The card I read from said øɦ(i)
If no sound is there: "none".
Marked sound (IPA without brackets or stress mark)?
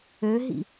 ḭ